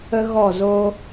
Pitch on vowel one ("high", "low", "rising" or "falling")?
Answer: high